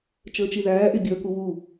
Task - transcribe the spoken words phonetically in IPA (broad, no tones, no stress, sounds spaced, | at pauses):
t͡ʃ əː t͡ʃ i ð æː ʔ ɪ bʲ ə˞ k u w u